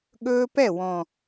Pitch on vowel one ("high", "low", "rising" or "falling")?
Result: high